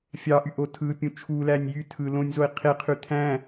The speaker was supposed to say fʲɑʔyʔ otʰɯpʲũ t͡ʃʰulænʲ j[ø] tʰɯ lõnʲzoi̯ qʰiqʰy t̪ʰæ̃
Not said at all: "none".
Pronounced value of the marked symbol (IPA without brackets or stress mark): y